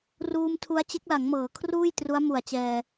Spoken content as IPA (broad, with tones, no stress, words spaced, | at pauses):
ruː˧mtʰu˦˥a̯ t͡ɕe˦˥k̚la˩˦ŋmɤː˩˦kʰruː˥˩j tru˦˥a̯mu˨˩a̯t͡ɕɛː˧